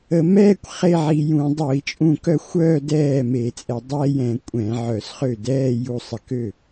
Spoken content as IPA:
ə˧˩˧ m ɛː˥˧ kʷ χ e˥˧ ʕ i˧ j ũ˧˩˧ dˤ o˧˩˧ i̯ t͡ʃʼ ũ˧ k œ˥˩ xʷ œː˥˧ d ɛː˥˩ m e˧˩˧ t͡sʼ ɛ˧˩˧ dˤ ɛː˥˧ j ɛ̃˧˩˧ kʷʼ ɛ̃˧˩˧ ʕ œ˧˩˧ s χ ø˥˩ d ɛː˥˧ j u˧ sˤ ə˧˩˧ k ø˥˩

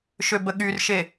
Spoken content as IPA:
ʃ ø b ə ɠ y r ʃ e

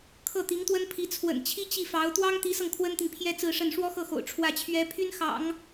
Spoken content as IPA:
kʰ ɤ˥˩ t̪ i˧˥ ŋ t̪ w ə˥ n pʰ i˧˥ t͡sʰ w ə̰˨˩ n t͡ɕʰ i˥ t͡ɕ i˥˩ f ɑ˧˥ ʊ̯ t̪ w ɑ˥ ŋ t̪ i˧˥ s ɤ˧ ŋ kʰ w ə˥ n t̪ i˨ ŋ pʰ j ɛ˥ t͡s ɹ̩˥˧ ʂ ə˥˩ n ʂ w ɔ˥ x ɤ˥˩ x o̰˨˩ ʊ̯ ʈ͡ʂʰ w ä˥˩ t͡ɕʰ ɥ ɛ˥ pʰ y˥ n x ɑ̰˨˩˦ ŋ

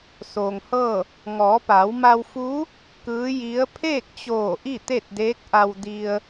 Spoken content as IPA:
s oː˩ ŋ h ɤː˥˨ | ŋ ɔː˩˧ p a˩˧ w m a˧ w f uː˧˥ | k ɯː˧˥ j i˧˥ ə̯ pʰ eː˥˨ k̚ t͡ɕ oː˧˩ ʔ i˥˨ t̪ e˥˨ t̚ d eː˧˥ k̚ ʔ a˧ w d i˧ ə̯

